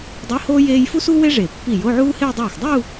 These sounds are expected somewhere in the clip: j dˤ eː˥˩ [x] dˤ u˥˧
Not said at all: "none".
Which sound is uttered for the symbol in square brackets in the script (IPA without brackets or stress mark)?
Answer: x